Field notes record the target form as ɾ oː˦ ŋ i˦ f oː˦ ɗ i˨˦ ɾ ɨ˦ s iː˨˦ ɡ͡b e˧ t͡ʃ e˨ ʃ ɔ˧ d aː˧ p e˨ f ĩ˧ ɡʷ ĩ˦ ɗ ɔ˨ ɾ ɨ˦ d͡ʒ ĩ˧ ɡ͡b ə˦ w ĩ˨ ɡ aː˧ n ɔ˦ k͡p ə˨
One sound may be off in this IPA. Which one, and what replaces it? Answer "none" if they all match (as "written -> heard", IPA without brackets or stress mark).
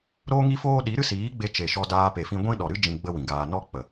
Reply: none